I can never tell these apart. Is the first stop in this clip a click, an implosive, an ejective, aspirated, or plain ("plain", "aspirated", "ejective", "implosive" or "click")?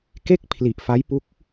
plain